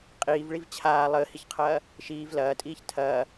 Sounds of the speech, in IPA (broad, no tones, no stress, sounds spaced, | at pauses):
qʼ iː v ɭ i v t͡ɕʰ aː lˠ əː h i ç qʰ ɐː | ʃ iː v l ɐː tʼ iː ç tʰ ɐː